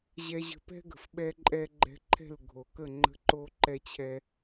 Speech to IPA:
ʑɛ˧ʑə̤˧pɛ̤˦ɡə̤˨f ɓɛ˧ǃʼɛ˧ɡ͡ǃɛ̤˧ǃʰɛ̤˦˨l ɡʱo˨kə˦˨ ŋ͡ǃə̤˧ǃo˧ǃɛ˧t͡ɕʰɛ˧

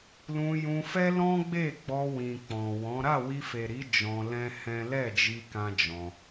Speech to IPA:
lũ˧jũ˧fɛ˦ lɔ̃˦ɡ͡be˦˨ɡ͡bɔ˧wĩ˨ k͡pɔ̃˨wɔ̃˨˦ ɾa˦˨wi˧fe˨ɾi˨˦ d͡ʒɔ̃˧lɛ̃˦hɛ̃˦ lɛ˦˨d͡ʒi˧ kã˦d͡ʒɔ̃˧

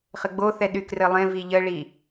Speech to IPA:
χɘɡ͡boθɛ ɗykrɘlˠẽvi ʎəɭi

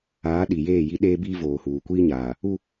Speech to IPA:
aː˨˦ɗi˨jeː˦˨ ji˦ɗeː˦biː˦ voː˨huː˨kʷiː˦ɲaː˨ | u˦

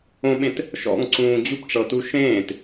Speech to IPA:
õɓẽt | ʃɔ̰ŋǀũː d͡ʑupʈ͡ʂɤtu ʃẽːt

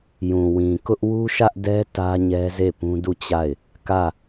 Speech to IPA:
jũ˨wĩ˨ kʊ˦ʔwu˦ʃä˦ʔdɛ˦ tä˦ɲɛ˦ ze˦˨pũ˦du˦˨t͡ɕa˦˨ɪ̯ | kä˦˨

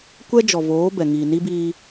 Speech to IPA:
kʷɛ˦d͡ʒɔ˨ voː˨˦ bɛ˨ŋiː˨ni˦biː˦

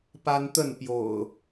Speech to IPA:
pa˦nt̪ə˥˨npjo̰˨˩ʊ̯

